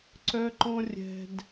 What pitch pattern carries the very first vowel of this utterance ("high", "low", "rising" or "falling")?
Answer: high